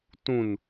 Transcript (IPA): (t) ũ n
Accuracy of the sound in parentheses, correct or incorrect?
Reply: correct